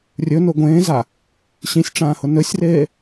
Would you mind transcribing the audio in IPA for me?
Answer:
rʲ ɵ n o ɡʷ ẽː z a | ɕ ĩ sʲ ʈ͡ʂ ãː h ʊ n ɵ sʲ r eː

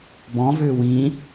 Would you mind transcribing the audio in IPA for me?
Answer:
b ɔ̃ v ʏː w ĩː

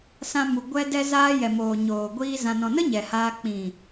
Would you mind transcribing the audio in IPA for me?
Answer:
s ã˧ m u˨ ɡʷ ɛ˧ d ɛ˧ z aː˧ j ɛ˨ m oː˨ ɲ oː˨ ɡʷ iː˧ z ã˨ n ɔ̃˨ n ə˦ ɲ ɛ˨ h aː˧ k͡p ĩ˨

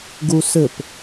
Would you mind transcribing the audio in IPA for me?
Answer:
ɡ u s ɘ p

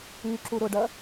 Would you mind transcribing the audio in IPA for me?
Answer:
y ǁ u ɾ ʊ ɖ ɐ

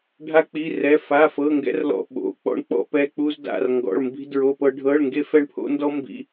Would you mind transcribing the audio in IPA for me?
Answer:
ɖʱ a˥ k͡p i˧˥˧ r ɛ˧˥˧ f a˧˥˧ f ɤ˧˥˧ ŋ ɡ ɛ̰˥ r l ɔ̰˧˥˧ ɓ o̰˧˥˧ k͡p ɔ̰˥ ɳ k͡p ɔ̰˥ p ɛ˧˥˧ k͡p u˥ z d a̰˧˥˧ r ŋ ɡ ɔ̰˧˥˧ ɭ m b i̤˥ d ɹ o˧˥˧ p ɤ˥ ɖʱ ɤ˧˥˧ ɭ ŋ ɡ e˥ f ɛ˥ ɳ pʰ o̰˥ n d ɔ˥ m b ḭ˧˥˧

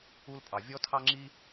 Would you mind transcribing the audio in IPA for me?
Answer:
u˦ l pʼ ɑ˨ vʲ ɔ˦ tʰ ɑ˦ ŋ͡ǁ i˦

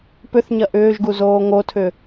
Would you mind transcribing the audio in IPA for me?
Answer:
p ʏ θ ɲ ɐ ʔ ʏː ʒ ɡ u z oː ŋ o tʰ ʏ

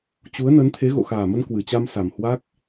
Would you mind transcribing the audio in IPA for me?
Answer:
t͡ɕ u˨˦ ə̯ n ə˨˦ n t̪ʰ e˨˦ ɣ o̰˧˨ x aː˨˩ m ə˧ n k w ɨ˧˩ t͡ɕ a˧ m s a˨˩ m h w a˦˥ k̚

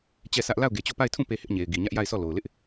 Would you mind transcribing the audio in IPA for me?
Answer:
t͡ɕ ɛ˦˨ sʰ ä˦ ʔ l a˦˨ ʊ̯ ɡ e˨ t͡ɕ o˦˨ p a˦˨ ɪ̯ tʰ ũ˦˨ p e˦ h ɪ˦ ʔ ɲ e˨ ɪ̯ ɡ i˨ ɲ ä˦ ʔ j a˦˨ ɪ̯ s ɔ˦˨ l o˨ ʊ̯ l ɪ˦ ʔ

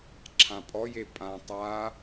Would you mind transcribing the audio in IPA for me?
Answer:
ǁʰ ã pʼ ɔ j e pʼ ã tˤ a

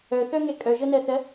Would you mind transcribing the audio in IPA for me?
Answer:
œ θ œ ŋ ɛ kʼ œ ʒ ɤ n ɜ θ ɜ

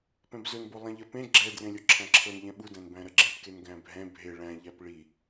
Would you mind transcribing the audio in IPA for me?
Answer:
p ɛ̃ b z ɵ n b o lˠ ɛ̃ ʎ ɜ p ẽ ɡ͡ǁ ɛ d r ẽ lʲ o ǁʰ æ̃ ǁʰ ɤ n ʎ ɛ̃ ɓ u d æ̃ n b æ̃ ɾ ɜ ɡ͡ǁ ẽ p k e n ɡ æ̃ bʱ ɛ̃ bʱ e ɭ æ̃ ʎ æ p ɭ i

